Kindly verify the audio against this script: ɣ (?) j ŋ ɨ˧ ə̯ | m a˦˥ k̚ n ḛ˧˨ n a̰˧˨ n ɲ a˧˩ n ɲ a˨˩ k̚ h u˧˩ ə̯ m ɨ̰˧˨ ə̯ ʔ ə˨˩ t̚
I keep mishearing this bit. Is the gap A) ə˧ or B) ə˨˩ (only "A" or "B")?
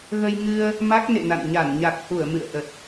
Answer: A